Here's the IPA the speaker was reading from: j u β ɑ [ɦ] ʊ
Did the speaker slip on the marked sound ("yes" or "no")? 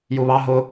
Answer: no